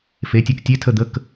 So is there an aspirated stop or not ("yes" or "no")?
yes